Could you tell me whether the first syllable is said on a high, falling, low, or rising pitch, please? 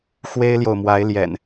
high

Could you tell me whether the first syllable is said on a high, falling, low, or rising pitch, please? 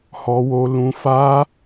high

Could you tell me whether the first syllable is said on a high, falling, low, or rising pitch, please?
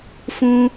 high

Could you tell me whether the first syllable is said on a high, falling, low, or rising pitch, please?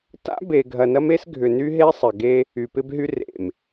high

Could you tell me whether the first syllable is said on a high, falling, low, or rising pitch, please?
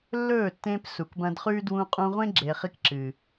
falling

